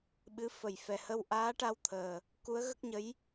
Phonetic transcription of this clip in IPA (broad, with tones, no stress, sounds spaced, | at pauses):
ɓ ɨ˧˥ f ə˨˩˨ j f ɛ˨˩ h ə˧ w ʔ aː˧˥ ʈ a˧ w t̪ʰ əː˨˩ | k u˧˥ ə̯ ɣ ə˦˥ k̚ ɲ ə˧˥ j